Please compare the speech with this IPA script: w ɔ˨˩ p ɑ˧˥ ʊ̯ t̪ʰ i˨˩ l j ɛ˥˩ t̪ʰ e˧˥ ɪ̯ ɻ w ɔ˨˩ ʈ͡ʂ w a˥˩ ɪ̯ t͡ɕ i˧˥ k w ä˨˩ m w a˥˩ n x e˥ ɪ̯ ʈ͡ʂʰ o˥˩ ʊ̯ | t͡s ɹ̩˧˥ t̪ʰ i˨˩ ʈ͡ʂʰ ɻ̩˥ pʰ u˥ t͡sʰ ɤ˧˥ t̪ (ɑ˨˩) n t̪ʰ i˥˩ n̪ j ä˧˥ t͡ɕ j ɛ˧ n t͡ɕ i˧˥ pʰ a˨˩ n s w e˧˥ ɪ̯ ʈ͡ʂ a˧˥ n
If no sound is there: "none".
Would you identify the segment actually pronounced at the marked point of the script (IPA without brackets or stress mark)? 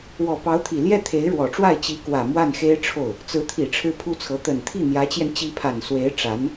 ə˨˩